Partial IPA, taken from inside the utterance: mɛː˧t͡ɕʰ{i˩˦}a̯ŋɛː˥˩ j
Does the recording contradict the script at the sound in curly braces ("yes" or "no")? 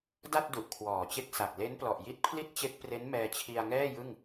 yes